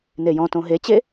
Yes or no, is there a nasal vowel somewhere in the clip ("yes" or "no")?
yes